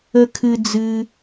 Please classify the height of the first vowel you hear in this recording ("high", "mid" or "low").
mid